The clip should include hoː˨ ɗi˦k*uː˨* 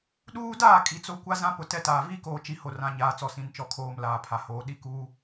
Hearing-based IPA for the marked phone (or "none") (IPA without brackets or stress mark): uː˦